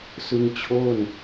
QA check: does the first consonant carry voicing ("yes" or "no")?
no